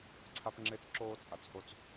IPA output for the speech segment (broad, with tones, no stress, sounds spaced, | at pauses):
ǀʰ a˦ p ŋ͡ǁ e˦ t͡s ǁ oː˦ t͡sʼ a˨ t͡s h o˦ t͡s